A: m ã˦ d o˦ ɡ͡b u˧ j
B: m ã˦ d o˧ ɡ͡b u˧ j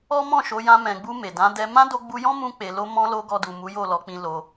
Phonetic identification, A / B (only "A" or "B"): B